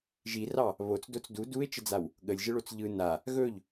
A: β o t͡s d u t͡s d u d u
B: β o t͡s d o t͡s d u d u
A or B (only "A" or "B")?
B